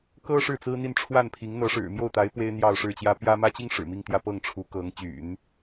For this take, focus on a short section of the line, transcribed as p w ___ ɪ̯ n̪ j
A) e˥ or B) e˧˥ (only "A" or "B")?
A